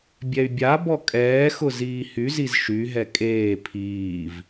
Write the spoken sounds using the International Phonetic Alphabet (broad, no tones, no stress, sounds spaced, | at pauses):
bʲ ɛ y̯ bʲ a b ɔ kʼ ɛː x ʊ z iː h y z i z ʃ y ɦ ɛ kʼ eː pʰ iː v